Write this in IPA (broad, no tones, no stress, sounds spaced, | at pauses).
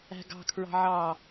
æ̤ ɡ ɑ̤ kʰ ɹ ɑ̤ ʕ ɑ